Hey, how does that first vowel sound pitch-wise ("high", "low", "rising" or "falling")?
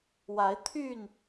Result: rising